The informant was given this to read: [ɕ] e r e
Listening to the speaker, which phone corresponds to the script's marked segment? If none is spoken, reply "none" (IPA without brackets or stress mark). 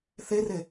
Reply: θ